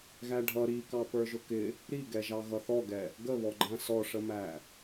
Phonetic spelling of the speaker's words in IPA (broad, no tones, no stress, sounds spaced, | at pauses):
ɣ æ ɖʱ ʌ ɾ i k ɑ p ə˞ ʒ ʊ k ɪ | ɾ i ɡ ɛ ʒ ɑ ɣ ʌ θ ɔ ɡ ɛ | ɡ ə β ɔ ɡ͡ǃ æ̃ s ɔ ʂ ə m æ